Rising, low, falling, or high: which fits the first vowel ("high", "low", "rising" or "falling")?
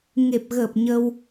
low